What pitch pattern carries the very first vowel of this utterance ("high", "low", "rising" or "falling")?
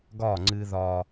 falling